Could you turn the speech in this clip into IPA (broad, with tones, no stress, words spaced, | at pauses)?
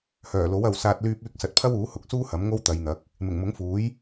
hœː˨˩lo˨˥w ɐ˨wsaː˧t̚ lyː˧p̚yː˧k̚sɐ˨˥t̚pʰɐ˥w uː˨˥hʊ˨k̚suː˥ hɐ˨˥mŋo˥wt̪ɐ˨˧jn̪ɐ˨˥k̚ | mɪ˨˩ŋmʊ˨˥ŋfuː˨˥j